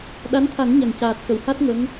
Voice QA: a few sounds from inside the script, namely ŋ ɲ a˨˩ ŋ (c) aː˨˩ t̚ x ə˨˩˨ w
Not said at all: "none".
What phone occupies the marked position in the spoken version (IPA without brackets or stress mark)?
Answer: c